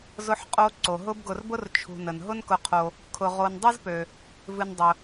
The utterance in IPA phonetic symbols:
z ʊ˦ ħ qʼ o˦ ǀ o˩ ɦ ʊ˦ b ɡ ʊ˨ r b ʊ˥ r t͡ʃʰ ṳ˨ n ə˩ n ɦ ʊ˥ n k ʊ˨ qʰ o˨ | kʰ ʊ˨ ʁ o˨ n dˤ ɨ˥ z p ø˩ | v ɨ˨ n dˤ ʊ˩

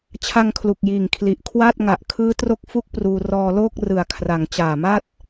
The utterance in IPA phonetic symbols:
t͡ɕʰ a˧ ŋ kʰ l u˨˩ k̚ j iː˨˩ ŋ kʰ l i˨˩ ʔ kʰ w aː˥˩ t̚ ŋ a˨˩ ʔ kʰ ɯː˦˥ t r o˦˥ k̚ f u˥˩ k̚ p r uː˧ r ɔː˧ l oː˥˩ k̚ r ɯ˨˩ a̯ kʰ r a˩˦ ŋ t͡ɕ aː˨˩ m a˥˩ t̚

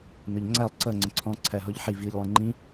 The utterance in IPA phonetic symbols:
n ʊ ʎ ŋ͡ǀ æ lˠ ǀ ʌ ŋ͡ǀ ə̃ ǀʰ ɔ̃ ǀʰ æ ɦ ɔ ʎ ħ i v i ʎ lˠ ĩ ŋ͡ǃ ĩ

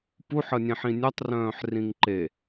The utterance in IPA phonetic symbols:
p u ħ ə nʲ ẽ ħ ĩ nʲ œ tˤ r œ̃ː ħ r ĩ ŋ ǃ e

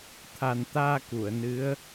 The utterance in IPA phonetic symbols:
t̪ʰ a˨˩ n t̪ aː˧ k u˨˩˨ ə̯ n ɨ˧˥ ə̯

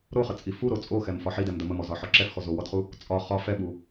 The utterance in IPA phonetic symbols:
ɾ o χ ə t͡sʼ i f u ɾ o t͡sʼ o x ɛ m f ɒ ħ i d ɛ m d ə m ə m ɔ z ɒ ħ ɔ ǁ ɛ f x ɔ z o w ɔ d χ u | t͡sʼ ɒ χ ɒ f ɛ ɓ u

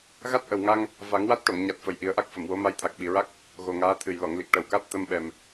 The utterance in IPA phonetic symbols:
ɣ a˦˥ t̚ ʔ ə˨˩ w ŋ a˧ ŋ | v a˨˩˦ ŋ w a˦˥ t̚ ʈ o˨˩˨ ŋ ɲ a˨˩ t̚ f ə˨˩ j ʔ i˨˩˦ ə̯ ʔ a˦˥ k̚ f ə˨˩˨ m w o˧˥ m a˧˥ j t̪ʰ a˨˩ k̚ ɓ i˨˩ ɹ a˦˥ k̚ | ɣ o˨˩ ŋ aː˧˥ t̪ʰ ɨ˨˩ j l ɔ˨˩˨ ŋ l i˨˩ k̚ ʈ ə˨˩ w k a˦˥ t̚ t̪ ə˧ m ɓ ɛ˨˩ m

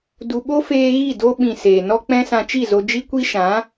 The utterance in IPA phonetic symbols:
d u˨ ɓ o˦ f eː˧ ɣ i˦˨ d o˧ ɓ ĩ˨ s eː˨ n ɔ˦ k͡p ɛ̃˦ s ã˧ t͡ʃ i˦˨ z o˧ d͡ʒ i˦ kʷ i˦ ʃ ã˨˦

